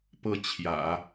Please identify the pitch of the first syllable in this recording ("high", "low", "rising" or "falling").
falling